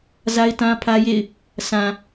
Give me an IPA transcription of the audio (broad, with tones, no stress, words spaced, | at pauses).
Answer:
za˦ɪ̯tã˦pʰä˦jḛ˦˨ɪ̯ | sã˨